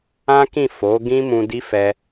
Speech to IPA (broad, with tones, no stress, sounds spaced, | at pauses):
ã˦ k ĩ˦˨ f o˨˦ ɡ ĩ˦ m ũ˧ d i˦ f ɛ˧